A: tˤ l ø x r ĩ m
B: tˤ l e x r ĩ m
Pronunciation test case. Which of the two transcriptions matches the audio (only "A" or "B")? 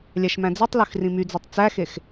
A